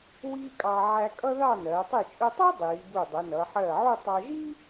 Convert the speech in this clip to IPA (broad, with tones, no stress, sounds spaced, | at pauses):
w iː˥ kʼ ɑ˧ ʕ æ˧ kʼ ʌ˥ ð ɑ˥˧ n ɜː˩˧ tˤ i˧˩ t͡ʃʼ ʊ˧ tˤ u˥ dˤ iː˩˧ b u˧˩ dˤ ə˩˧ n ʌ˩˧ ħ ɜː˧˩ ʕ u˥˧ tˤ ɑ˧ ʒ i˥